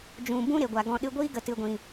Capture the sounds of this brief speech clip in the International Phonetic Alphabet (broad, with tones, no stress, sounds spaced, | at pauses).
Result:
d͡ʒ ũ˨ b ũ˦ ɾ e˨ ɡʷ a˨ ɡ ɔ̃˨ ɗ ɨ˧ ɡʷ iː˦ ɡ ə˨ t ɨ˨ ɡʷ ĩ˨